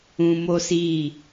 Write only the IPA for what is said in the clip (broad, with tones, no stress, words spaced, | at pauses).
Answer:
ũ˧mo˦si˦˨